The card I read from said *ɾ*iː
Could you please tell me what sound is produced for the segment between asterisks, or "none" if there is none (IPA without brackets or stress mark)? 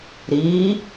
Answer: ɾ